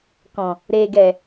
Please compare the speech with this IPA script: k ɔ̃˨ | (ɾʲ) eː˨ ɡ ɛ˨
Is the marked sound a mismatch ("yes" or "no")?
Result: yes